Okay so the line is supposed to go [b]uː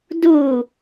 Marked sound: incorrect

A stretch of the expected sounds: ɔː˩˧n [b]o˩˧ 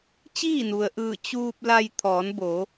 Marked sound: correct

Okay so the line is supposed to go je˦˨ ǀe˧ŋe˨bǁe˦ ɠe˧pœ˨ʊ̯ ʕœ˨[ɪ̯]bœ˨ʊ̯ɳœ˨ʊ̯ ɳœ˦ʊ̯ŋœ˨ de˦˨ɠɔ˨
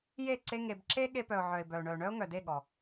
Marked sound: correct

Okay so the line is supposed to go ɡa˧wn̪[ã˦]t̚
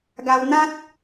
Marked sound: correct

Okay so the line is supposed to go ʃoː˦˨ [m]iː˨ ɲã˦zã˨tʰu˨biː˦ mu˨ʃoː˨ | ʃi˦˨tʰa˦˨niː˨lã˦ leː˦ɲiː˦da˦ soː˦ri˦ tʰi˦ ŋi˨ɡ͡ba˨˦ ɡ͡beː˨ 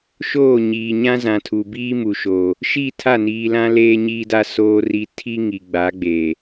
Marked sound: incorrect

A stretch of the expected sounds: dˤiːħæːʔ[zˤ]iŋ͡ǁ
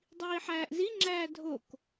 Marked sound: incorrect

